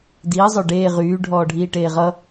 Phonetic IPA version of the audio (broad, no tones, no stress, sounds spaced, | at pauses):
d iː zˤ œ ɖ eː ʁ yː ɖʱ ɔː ɖʱ iː ʈ eː ʁ ʌ